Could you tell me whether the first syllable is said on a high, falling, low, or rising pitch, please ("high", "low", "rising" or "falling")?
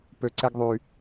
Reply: low